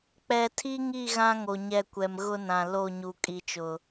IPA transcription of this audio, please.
k͡p ɛ˨ tʰ i˦ ŋ i˦˨ ɣ ã˦ ŋ o˨ ɲ ɛ˦˨ kʷ ɛ˨ m ɣ ʊ˦ n ã˨ l o˦˨ ɲ u˨ kʼ i˨ t͡ʃ ʊ˨

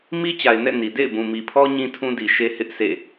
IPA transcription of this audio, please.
m i˦ t͡ɕ a˨ ɪ̯ n ɛ̰˦˨ n i˨ d ḛ˦˨ ɪ̯ b ũ˨ m i˨ pʰ ɔ˦ ɲ ĩ˦ tʰ ũ˦ d i˨ ʃ e˦ h ɪ˦ ʔ s ḛ˦˨

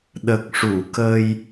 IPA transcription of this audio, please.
ɗ ə˨˩ k̚ ʂ u˨˩˨ k ə˧ j

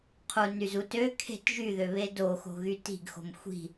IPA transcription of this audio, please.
qʰ u n y z u t ø kʰ e̤ t ʒ y ð ø β e d o x o̤ ɣ y t i̤ ɡ x o̤ m xʷ i̤

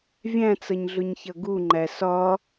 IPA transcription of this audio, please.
vʲ æ̃ t͡s ʌ ɲ ɮ ʊ ɲ ç ʌ ɡ u ŋ͡ǃ æ s ɒ

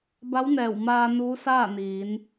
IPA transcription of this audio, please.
b a˧˥ w n ɛː˧˩ w m aː˧ n uː˧˥ s aː˥˨ n iː˩˧ n

